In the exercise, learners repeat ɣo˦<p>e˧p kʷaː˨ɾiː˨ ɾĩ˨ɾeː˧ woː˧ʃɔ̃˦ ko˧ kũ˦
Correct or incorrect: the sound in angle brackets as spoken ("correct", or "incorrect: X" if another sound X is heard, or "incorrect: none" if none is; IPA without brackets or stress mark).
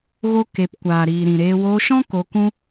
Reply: incorrect: k